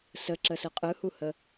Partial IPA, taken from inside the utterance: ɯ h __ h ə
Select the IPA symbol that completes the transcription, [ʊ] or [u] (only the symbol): u